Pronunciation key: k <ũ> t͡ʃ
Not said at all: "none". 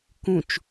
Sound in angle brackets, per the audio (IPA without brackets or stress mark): ũ